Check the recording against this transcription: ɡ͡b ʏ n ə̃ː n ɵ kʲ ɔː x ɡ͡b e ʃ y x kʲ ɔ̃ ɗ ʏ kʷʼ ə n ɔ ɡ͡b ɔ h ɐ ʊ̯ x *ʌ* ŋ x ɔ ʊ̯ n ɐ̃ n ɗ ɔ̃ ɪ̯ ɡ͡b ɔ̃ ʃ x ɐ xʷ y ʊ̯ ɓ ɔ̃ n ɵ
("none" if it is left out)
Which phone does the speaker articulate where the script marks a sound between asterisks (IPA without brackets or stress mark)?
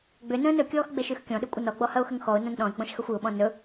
ə